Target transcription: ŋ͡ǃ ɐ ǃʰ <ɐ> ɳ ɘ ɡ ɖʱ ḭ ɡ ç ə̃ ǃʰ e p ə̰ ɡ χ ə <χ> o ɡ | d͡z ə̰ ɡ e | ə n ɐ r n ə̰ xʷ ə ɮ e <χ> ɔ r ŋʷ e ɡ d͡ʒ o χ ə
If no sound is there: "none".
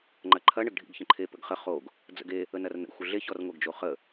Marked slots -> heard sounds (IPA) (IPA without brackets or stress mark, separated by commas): ɐ, χ, ç